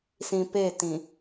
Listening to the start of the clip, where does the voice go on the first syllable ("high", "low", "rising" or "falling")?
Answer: low